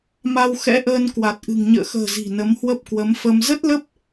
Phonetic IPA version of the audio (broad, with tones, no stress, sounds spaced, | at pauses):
m a˧ w x ɛ̰˧˥ ʔ əː˧ n k w a˨˩ t̚ ʔ ɨ̤˨˩ ŋ ɲ ə̰ː˧˨ x ə̤ː˨˩ z i̤˨˩ n ə˨˦ m h w ə˦˥ p̚ k w ə˨˦ m f ə˧ m z ə˦˥ t̚ l ə˦˥ p̚